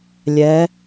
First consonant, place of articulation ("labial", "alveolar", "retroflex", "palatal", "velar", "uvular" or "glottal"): alveolar